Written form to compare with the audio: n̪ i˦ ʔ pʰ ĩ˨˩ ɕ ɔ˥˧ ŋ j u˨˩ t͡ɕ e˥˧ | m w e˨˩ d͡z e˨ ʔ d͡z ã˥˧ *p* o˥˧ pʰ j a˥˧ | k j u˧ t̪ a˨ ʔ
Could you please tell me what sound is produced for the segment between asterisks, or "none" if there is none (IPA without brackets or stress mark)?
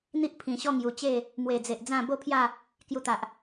b